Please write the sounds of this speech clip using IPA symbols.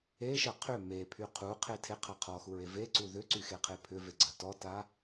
e ʃ ɜ qʰ ʏ m e pʰ y qʰ u qʰ e tʰ e qʰ a qʰ ɔ x u ɹ e v e ǀ u ð ʏ ǀ y x e qʰ e pʰ ʏ v e ɡ͡ǀ ɜ t ɔ t a

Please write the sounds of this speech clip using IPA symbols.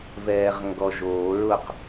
v ɛː ʁ ŋ ɡ ɔ ʒ o ɹ ʊ q

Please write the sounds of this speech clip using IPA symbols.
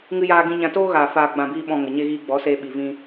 ŋ ɨ˧ j aː˧ ɡ ĩ˧ ɲ ã˧ t oː˦ ɣ aː˨ f aː˨ ɡ͡b ã˨ b iː˧ ɓ ɔ̃˧ ŋ ə˨ ɲ e˧ ɣ iː˧ ɡ͡b ɔ˨˦ s eː˧ ɓ i˨ v ĩ˧

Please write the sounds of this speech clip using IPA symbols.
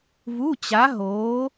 v u˧˥˧ t͡ɕ a˧˥ ɦ oː˧˥

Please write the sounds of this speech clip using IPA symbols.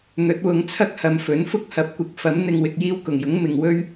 n̪ ɵ˨˥ t̚ w ʊ˨˧ ŋ t͡sʰ ɐ˥ k̚ h ɐ˨˧ m f ɵ˨˥ n f ʊ˥ k̚ h ɐ˨ p̚ kʷ ɪ˨ k̚ f ɐ˨˥ m n̪ ɪ˧ ŋ w ɪ˧ k̚ j iː˧ w k ʊ˨˩ ŋ j ʊ˨˥ ŋ m ɪ˨ ŋ w ɵ˥ ɥ

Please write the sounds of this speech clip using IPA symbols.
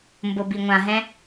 m b ʊ b i ŋʷ ã ɦ ɛ̃

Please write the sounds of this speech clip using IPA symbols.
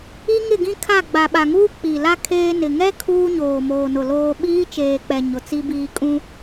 i˦ ŋ ɪ˦˨ ɡ ĩ˦ kʰ a˦˨ ɡ͡b a˨ ɓ a˨ ŋ uː˦ k͡p i˨ l a˦ kʰ eː˦ n ɪ˨ ŋ ɛ˦ kʰ uː˦ ɲ oː˨ m oː˨ n ʊ˨ l oː˨ ɓ iː˦ t͡ʃ eː˨ k͡p ɛ˨ ɲ ʊ˨ t͡s i˦ b iː˦ kʼ ũ˦

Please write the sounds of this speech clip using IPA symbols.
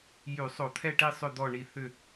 j y˧˩˧ sˤ o˧˩˧ t̪ʰ ɛ˦˨ ʈ i˦˨ sˤ ʏ˦˨ d̪ ɔ˦˨ ɳ i˦˨ θ ʏ˦˨

